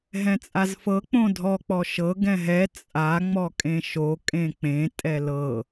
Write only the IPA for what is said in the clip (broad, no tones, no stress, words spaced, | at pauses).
ɦɛ̃t͡sʼazfɤ k͡põdʱɔ k͡pɔʃɤ ɡɛ̃ɦɛ t͡sʼa ŋ͡mɔkʼẽʃo kʼẽk͡pẽ tʼɛlɤ